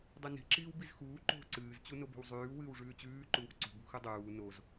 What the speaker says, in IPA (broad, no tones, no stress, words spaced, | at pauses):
dˤʉni̤ ǁiːwbizxuː ǃo̤ ǀɨːz t͡ɕunobo̤wzˤʉː wɨːwʐʉːt͡ɕʉː ǃuwo̤ǀṳ bṳxʉdˤuː noz